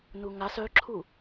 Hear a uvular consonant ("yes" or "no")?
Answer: no